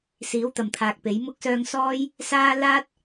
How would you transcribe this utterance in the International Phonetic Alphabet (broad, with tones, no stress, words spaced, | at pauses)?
siː˨˧wt̪ɐ˨mt̪ʰaː˨k̚pe˨˧j mʊ˧k̚sœː˧ŋ sɔː˥j | saː˥ laː˥t̚